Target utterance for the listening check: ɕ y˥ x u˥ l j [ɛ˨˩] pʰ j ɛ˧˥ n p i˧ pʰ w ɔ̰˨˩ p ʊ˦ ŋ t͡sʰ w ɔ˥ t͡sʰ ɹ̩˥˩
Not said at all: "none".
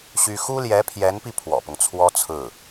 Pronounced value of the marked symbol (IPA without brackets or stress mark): ɛ˧˥